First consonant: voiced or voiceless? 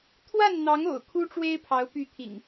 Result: voiceless